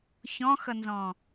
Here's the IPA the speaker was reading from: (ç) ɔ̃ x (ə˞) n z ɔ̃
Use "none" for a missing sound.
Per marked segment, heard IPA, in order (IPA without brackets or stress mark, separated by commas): ç, ʌ